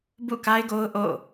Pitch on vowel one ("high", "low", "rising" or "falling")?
falling